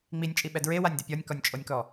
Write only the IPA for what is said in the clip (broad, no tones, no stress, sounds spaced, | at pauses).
ŋ͡m i nʲ t͡ʃʼ i ɓ ɛ d ɹ e w a nʲ d ɪ pʲ ɔ nʲ k ɔ nʲ t͡ʃʼ o nʲ k ɔ